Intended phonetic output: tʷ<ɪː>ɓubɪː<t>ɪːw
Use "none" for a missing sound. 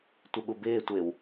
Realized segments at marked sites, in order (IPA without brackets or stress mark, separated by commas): ɪ, tʷ